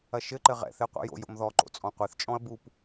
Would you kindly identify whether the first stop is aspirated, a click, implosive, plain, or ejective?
click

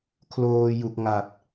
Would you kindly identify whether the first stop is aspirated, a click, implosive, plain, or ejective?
aspirated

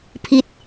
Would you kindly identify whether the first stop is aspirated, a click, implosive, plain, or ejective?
aspirated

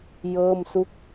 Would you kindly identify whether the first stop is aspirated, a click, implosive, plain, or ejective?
plain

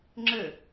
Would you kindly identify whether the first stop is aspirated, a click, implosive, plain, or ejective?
click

